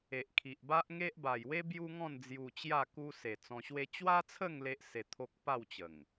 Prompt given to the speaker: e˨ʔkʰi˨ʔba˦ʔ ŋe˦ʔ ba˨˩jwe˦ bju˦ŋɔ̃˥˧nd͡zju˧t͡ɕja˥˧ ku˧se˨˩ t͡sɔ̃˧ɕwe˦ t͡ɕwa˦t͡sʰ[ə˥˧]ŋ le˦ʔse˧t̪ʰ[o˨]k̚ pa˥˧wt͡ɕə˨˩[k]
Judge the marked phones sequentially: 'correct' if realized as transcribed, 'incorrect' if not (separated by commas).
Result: correct, incorrect, incorrect